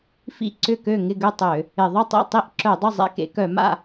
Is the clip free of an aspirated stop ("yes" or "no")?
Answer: yes